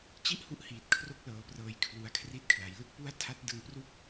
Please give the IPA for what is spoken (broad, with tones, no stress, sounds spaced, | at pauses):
t͡ɕ i˥˩ ʔ h u˦˥ ʔ h iː˨˩ t̚ kʰ r o˦˥ k̚ l ɤː˩˦ p r ɤː˨˩ j kʰ l u˨˩ a̯ kʰ r i˦˥ t̚ kʰ l a˩˦ j l ɯ˥˩ k̚ p u˥˩ a̯ tʰ a˦˥ t̚ d ɯ˧ ŋ p r u˥˩ k̚